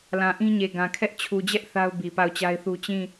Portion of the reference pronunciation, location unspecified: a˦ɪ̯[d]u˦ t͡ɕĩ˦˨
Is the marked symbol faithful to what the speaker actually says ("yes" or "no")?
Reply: no